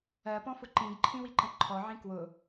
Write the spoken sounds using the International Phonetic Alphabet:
ɜ p ɔ̃ f ʊ ǃ ĩ ɡ ǃʰ ĩ w i ǃ ə̃ ǃʰ ɔ ʕ ĩ k w ʊ

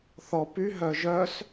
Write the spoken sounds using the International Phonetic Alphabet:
θ ɔ p y ɦ œ ʒ œ s

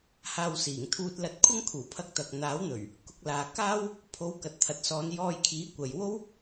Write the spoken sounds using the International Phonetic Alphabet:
h aː˧ w s iː˨˩ ŋ t̪ʰ uː˧ t̚ l ɐ˧ t̚ kʷʰ ɐ˥ ŋ kʰ uː˨˩ pʰ ɐ˧ k̚ t̪ ɐ˨ k̚ n̪ aː˨˥ w n̪ ɵ˨˩ ɥ | k ʊ˧ k̚ l aː˨ k aː˥ w | pʰ o˨˧ w k ɐ˨ t̚ t̪ʰ ɐ˨ t̚ s ɔː˨˧ n j ɔː˧ j kʰ iː˨˥ kʷ ɐ˨ j w o˥ w

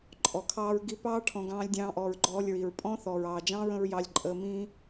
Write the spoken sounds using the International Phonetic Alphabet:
ǃʼ ɔ˨ kʰ ɑː˧ ɹ ɡ i˧ p ɑː˦ ʈʰ ɔ̃˧ ɡ ɑ̃ː˦ lʲ dʲ ɑ̃ː˦ ʔ ɔː˧ ɹ ɡ͡ǃ ɔː˧ lʲ ɹ i˨ ɹ pʼ ɔ̃˦ θ ɔː˨ ɹ ɑː˨ d͡ʒ ɑ̃ː˦ ɹ ə̃˦ ɹ j ɑ˧ lʲ ǃʼ əː˧ m ĩː˦

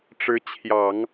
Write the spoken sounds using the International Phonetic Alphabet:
ʈ͡ʂ ɻ̩˧˥ t͡ɕʰ j ɑ˨˩˦ ŋ

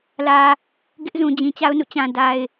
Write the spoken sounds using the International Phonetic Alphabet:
l ä˨ | ɡ ɪ˦ ʔ z ũ˨ d͡ʑ ĩ˨ t͡ɕ a˦ ʊ̯ n ṵ˦˨ t͡ɕ ã˨ d a˨ ɪ̯

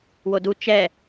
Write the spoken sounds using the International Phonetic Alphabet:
w o d u t͡ʃ ɛ

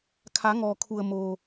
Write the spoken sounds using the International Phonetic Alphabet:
kʰ a˩˧ ŋ ɔː˩ kʰ u˩ ə̯ m oː˩

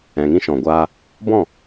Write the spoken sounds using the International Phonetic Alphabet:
ɛ̃˨ ŋ ĩ˧ ʃ ɔ̃˨ ɡʷ aː˧ | b ɔ̃˦˨

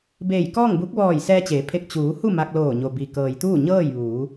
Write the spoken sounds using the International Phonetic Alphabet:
b eː˧˩ j k ɔː˥˨ ŋ b u˧˥ k̚ ʋ ɔː˧˩ j s ɛː˧ t͡ɕ eː˩˧ pʰ e˧˩ k̚ t͡ɕ uː˩˧ h u˥˨ m a˧ k̚ l oː˧˩ ɲ o˩ b i˩ k ɤː˩ j t̪ uː˥˨ ɲ ɤː˥˨ j ʋ uː˩˧

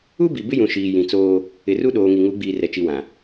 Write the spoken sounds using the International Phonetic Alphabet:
u˦ b i˨ b ɪ˦ j ũ˨ ʃ iː˨ j ĩ˨ t͡s oː˦ | ɪ˨ r u˦ ɗ oː˨ ŋ i˨ ŋ u˨˦ ɡ͡b iː˨ r ɛ˨ t͡ʃ i˨ w ã˨

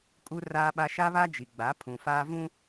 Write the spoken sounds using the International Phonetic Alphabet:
kʼ u˦ r aː˦ ɓ a˦ ʃ a˦ β a˦ d͡ʒ i˨ ɡ͡b a˨˦ pʰ ũ˨ f aː˦ v ũ˦

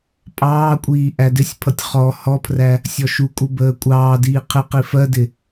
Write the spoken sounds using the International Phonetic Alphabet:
pʼ ɑː kʷʼ iː ʔ æ d ɪ sʲ pʰ ʌ tʲ χ ɔ h ɔ pʰ r æ | sʲ ɔ ʃ u kʼ u b əː kʷʼ ɑː d iː qʰ ɪ q i f ɜ d ɪ

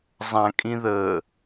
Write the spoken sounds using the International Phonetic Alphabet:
zˤ ã kʼ ĩ ð əː

